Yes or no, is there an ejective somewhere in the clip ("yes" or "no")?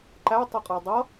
yes